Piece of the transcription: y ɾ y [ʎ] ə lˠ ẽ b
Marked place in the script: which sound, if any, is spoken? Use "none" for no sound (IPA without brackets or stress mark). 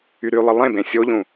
lˠ